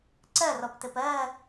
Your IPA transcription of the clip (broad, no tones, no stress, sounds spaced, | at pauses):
ǀ ɜ r ɔ p t ɘ p ɜ